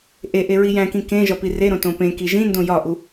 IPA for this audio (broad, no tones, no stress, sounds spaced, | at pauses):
ʔ e ʔ e ɹ i j æ̃ k ĩ k ẽ ʒ ɒ p i r e ɾ õ t õ p ẽ k i ʒ ĩ n d õ j ɒ ʔ u